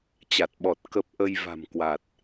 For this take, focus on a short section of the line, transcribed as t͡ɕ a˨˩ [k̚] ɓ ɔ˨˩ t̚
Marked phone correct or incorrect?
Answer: incorrect